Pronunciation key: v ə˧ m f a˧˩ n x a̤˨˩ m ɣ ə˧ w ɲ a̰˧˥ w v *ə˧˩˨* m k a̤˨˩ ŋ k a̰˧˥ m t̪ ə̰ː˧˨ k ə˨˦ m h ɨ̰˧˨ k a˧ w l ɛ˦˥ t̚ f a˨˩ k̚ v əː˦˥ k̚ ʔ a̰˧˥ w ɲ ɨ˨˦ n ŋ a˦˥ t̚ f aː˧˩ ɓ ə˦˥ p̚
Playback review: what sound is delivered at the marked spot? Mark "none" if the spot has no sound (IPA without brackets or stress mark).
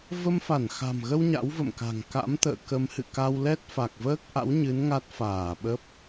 ə̰˧˨